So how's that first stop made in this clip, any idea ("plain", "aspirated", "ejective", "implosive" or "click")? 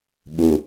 implosive